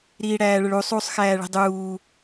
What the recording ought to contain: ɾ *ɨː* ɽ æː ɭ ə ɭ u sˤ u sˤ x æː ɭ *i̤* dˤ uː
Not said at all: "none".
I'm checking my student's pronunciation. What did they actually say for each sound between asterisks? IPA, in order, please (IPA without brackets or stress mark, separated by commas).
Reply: iː, i̤